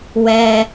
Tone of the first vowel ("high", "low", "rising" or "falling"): low